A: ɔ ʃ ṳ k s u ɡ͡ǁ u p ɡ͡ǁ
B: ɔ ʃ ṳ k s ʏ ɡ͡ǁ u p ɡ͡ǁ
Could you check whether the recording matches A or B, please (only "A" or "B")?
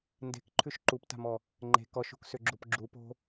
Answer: B